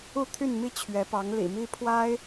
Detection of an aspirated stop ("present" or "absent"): present